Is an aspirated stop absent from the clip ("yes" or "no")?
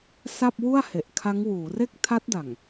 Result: no